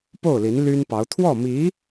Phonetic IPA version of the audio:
p o˥˩ ʊ̯ l i˧˥ n l y˥ n p ɑ˧˥ ʊ̯ t̪ʰ w ɔ˥˩ m i˧˥

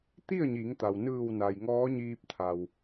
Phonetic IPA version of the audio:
t̪ i˥˨ ə̯ ɲ i˩˧ ŋ t̪ a˩ w n ɯː˧˩ w n a˩ j ŋ ɔː˧˥ ɲ iː˧ p̚ t̪ʰ a˩ w

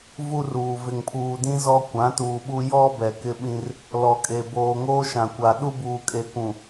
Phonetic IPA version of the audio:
v u˦ r uː˨ v ɪ˨ ŋ pʰ uː˨ d ĩ˦ z ɔ˦ kʷ ã˨˦ t uː˨ ɓ u˦ j ɔ˦ b ɛ˨ k ɪ˦ ɓ ĩ˦ r | l ɔ˨ kʼ e˨ b oː˨ ŋ oː˦ ʃ ã˨ kʷ a˨ ɗ u˦ b uː˨ kʼ e˨ kʷ ũ˨

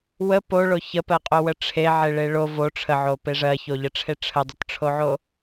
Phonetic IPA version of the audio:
w ə p o ɭ o ç ə p ɜ qʼ o w ə ʈ͡ʂʰ e ʕ e ɭ e ɭ o v o ʈ͡ʂʰ ə ʕ o p e ʐ ɜ ç o ʎ ə ʈ͡ʂʰ e ʈ͡ʂʰ ə dˤ ə t ʈ͡ʂʰ o ʕ o

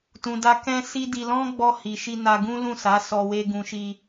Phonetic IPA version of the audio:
t ũ˨ d a˧ k ɛ̃˧ s i˦ d i˧ l ɔ̃˦ ɡ͡b ɔ˧ h i˨ ʃ i˧ n a˧ ɡ ũ˦ l ũ˦˨ s a˨˦ s ɔ˧ w e˦ ɡ ũ˧ ʃ i˧

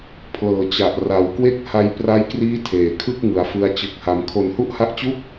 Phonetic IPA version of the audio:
pʰ l ɤː˨˩ t͡ɕ a˨˩ ʔ r a˩˦ w k w e˥˩ k̚ h a˧ j p r a˦˥ j k r iː˦˥ tʰ eː˨˩ kʰ ɯ˥˩ k̚ ŋ ɯ˩˦ a̯ f ɯ˦˥ a̯ t͡ɕ ɯ˨˩ k̚ h a˩˦ m kʰ o˨˩ n h u˥˩ ʔ h a˦˥ ʔ t͡ɕ u˥˩ k̚

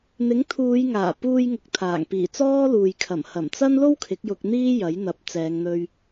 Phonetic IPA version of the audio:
n̪ ɪ˨˥ ŋ t̪ʰ uː˨˧ j ŋ aː˨˩ p uː˧ j ŋ ʊ˨ k̚ t̪ʰ aː˨˩ ŋ p iː˨˩ t͡s ɔː˥ l uː˨ j kʰ ɐ˨˩ m h ɐ˨˩ m t͡s ɐ˥ n l o˥ w kʰ ɪ˨˥ k̚ j ʊ˧ k̚ n̪ iː˥ j ɐ˨˥ j n̪ ɐ˨˥ p̚ t͡s ɛː˨˧ ŋ n̪ ɵ˧ ɥ

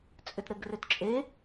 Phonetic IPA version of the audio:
t͡sʼ ʏ t ɾ ɘ ɡ r ʏ t t͡ʃʼ e

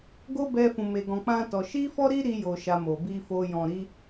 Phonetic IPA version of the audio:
ɡ o˦ b ɛ˧ f ũ˨ m e˧ ɡ ɔ̃˧ k͡p ã˦ t ɔ˧ ʃ i˦ f ɔ˦ ɾ i˦ ɾ i˦ j o˧ ʃ a˧ m o˨ b i˧ f o˧ j ɔ̃˨ ɾ i˧

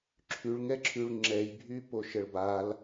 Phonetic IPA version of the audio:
ǁʰ y ɭ ŋ ɛ ǁʰ y ɭ ŋ͡ǁ ɛ j bʱ y p o ʃ ə ɭ b a l

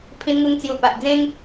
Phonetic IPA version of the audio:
pʰ ĩ˧ n ŋ u˧ ŋ t͡s j u˨˩ p a˨ ʔ d͡z ẽ˦ ŋ

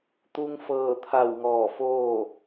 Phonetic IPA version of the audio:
t̪ u˧ ŋ f ɤː˧˩ t̪ʰ a˧˩ w ŋ ɔː˧˩ f oː˥˨

